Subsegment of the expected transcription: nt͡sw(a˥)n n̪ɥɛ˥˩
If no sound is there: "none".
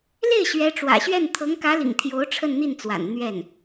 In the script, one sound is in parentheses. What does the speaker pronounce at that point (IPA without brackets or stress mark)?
a̰˨˩